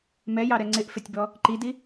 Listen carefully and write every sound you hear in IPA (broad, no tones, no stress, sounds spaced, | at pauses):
m ɛ j ɑ ɾ ɛ ŋ͡ǀ ɪ ʔ f ɪ tʲ b ɔ | ǃ i d i